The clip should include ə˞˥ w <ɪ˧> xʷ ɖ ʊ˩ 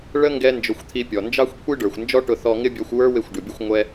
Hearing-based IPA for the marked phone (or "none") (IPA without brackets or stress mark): ɪ˧